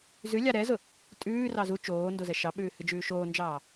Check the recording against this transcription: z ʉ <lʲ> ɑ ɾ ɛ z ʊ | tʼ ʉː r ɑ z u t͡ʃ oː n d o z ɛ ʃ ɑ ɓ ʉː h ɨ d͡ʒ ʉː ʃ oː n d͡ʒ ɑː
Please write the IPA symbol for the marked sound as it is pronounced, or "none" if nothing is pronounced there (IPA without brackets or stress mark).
lʲ